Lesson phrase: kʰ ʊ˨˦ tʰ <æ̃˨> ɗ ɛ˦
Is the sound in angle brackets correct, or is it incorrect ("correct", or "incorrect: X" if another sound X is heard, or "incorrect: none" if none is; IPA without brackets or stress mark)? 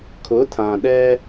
incorrect: ã˨